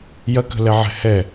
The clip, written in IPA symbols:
j ɐ k ə̤ l ɛ ʕ ɛ̤ h ɛ

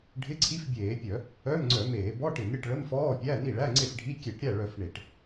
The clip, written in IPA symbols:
ɖʱ ɪ˧˥˧ ǀʰ i˧˥˧ f bʲ eː˧˩˧ pʲ œ˧˩˧ | œ˧˥˧ m ŋ͡ǀ œ˧˩˧ m eː˧˩˧ b ɔ˧˥˧ ʈ ɪ˧˩˧ m ɾʲ ə˥˩ ʈ ɭ ə˧˥˧ m f ɔː˧˥˧ pʲ æ˧˥˧ n i˥˩ ɭ æ˧˥˧ ŋ͡ǀ ɪ˥˩ f ɖʱ i˧˥˧ kʲ e˧˩˧ ʈ ɾʲ æ˥˩ ɭ œ˧˩˧ f ɳ e˧˩˧ ʈ

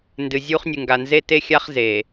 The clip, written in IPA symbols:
n d ɨ˨ zʲ u˦ χ nʲ ɨ˨ ŋ ɡ a˨ n z e˦ t e˦ xʲ a˦ χ z e˨

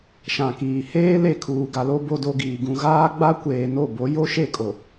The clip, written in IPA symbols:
ʃ ã˨ k iː˨ h eː˦ l e˦˨ kʰ uː˨ ɡ a˨ l o˦ b o˦ d o˦ ɡ iː˨ ɡ ũ˨ ɣ aː˦ ɡ͡b a˦ kʷ eː˨ n o˦˨ b o˨˦ j o˦ ʃ e˦˨ kʼ o˨

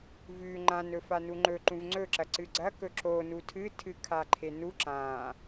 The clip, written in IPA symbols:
v ʉ ŋ͡ǃ ã n ɵ f a n u ŋ͡ǃ ɵ ǃ ũ v ŋ͡ǀ ɵ ǁ ɐ ǀ ɨ ɡ͡ǀ ɐ k ɵ ǁ o n u tʰ ɨ tʰ ɨ kʰ a ǃʰ e n u ǁ ã

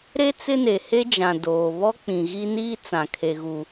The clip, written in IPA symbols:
ɾ e˦ t͡s ɪ˦ n e˨ h e˦ d͡ʒ ã˨ d oː˨ β ɔ˦ k͡p ĩ˨ ɣ i˦ n iː˦ t͡s ã˨ kʰ e˨ ɣ u˨

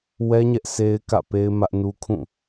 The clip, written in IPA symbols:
w ɛ˦ ɲ ɛ˦ ʔ s e˦ ɪ̯ k ä̰˦˨ p e˦ ɪ̯ m ä˦ ʔ n u˦ kʰ ũ˦˨

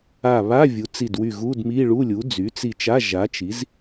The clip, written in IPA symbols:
a˧˩ β a˧˥˧ vʲ u˩˥ t͡s i˧˩ d w y˧˩ ɣ u˧˥˧ d m i˧˥˧ ɭ u˧˥˧ lʲ u˩˥ d͡z y˩˥ t͡s i˧˩ t͡ʃ a˧˥˧ ʒ a˩˥ t͡ʃ i˩˥ z

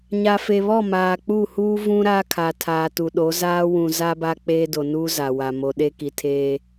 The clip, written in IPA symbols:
ɲ a˨ f e˨ β ɔ˦˨ m aː˨ k͡p u˦˨ h uː˦ v ũ˦ ɾ aː˦ kʰ a˨ tʰ aː˨ t u˨ ɗ o˨˦ z aː˦ w ũ˨ z a˦ b a˦ k͡p eː˦ d o˨ n uː˦ z a˨ w a˨ m o˨ ɗ e˦ k i˨ tʰ eː˦

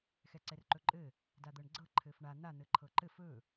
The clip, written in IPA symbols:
x ɛ ǀ ɛ r ǃ ɵ ǃʼ ɘ | d a d̪ ɤ ɳ ɡ͡ǀ ɤ ǃʰ ɘ f ɳ a n̪ a n̪ ɘ ǃʰ ɤ ǃ ɘ f ɵ

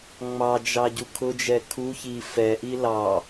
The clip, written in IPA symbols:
ŋ͡m ɑ d͡ʒ ɑ ɟ u kʰ ʊ d͡ʒ ɛ kʰ u ç i f ɛ ʔ i l ɑ

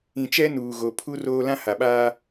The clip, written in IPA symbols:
ĩ˨ t͡ʃ ɛ˦ n uː˨ ɣ o˨ pʰ u˦ r oː˦ l ã˦ h a˨ ɓ aː˦

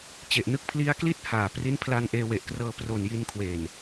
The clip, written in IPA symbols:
t͡ɕ e˨˩ ʔ n ɯ˥˩ k̚ pʰ l i˦˥ a̯ k l i˥˩ t̚ h aː˨˩ p r i˦˥ n pʰ l a˧ n ʔ eː˧ w e˨˩ ʔ k r ɤː˧ p r o˨˩ n j i˧ n kʰ w e˨˩ n

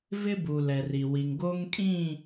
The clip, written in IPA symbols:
v ɪ˦ b u˨ l ɛ˨ r i˨ w i˨ ŋ ɡ o˦ ŋ kʼ ĩ˦˨

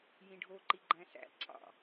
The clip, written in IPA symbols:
j ĩ ɖʱ o ǃ i ɡ͡ǃ æ̃ s æ̰ ǀʰ ɑ̰

